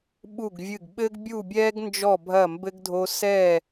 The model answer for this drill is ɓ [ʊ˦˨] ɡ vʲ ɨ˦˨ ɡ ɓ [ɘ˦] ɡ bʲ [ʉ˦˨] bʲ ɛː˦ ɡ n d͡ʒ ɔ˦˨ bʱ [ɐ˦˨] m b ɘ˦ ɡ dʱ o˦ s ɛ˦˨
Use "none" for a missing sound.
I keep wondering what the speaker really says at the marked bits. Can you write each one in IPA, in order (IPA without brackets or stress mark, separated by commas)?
u˦˨, ɘ˦, u˦˨, ɐ˦˨